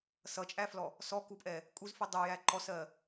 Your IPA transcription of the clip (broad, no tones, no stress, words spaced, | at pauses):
sʌt͡ʃʼæflɔ | sɔkupʼɛ | kʼuzfi dˤʊjæ ǃɔsɜ